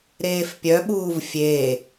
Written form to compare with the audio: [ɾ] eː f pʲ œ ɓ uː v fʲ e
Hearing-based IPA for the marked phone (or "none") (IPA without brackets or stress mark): ɾ